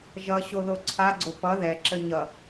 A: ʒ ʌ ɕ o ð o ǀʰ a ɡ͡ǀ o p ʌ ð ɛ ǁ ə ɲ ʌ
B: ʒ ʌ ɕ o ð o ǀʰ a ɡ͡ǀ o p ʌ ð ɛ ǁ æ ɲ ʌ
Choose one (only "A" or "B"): A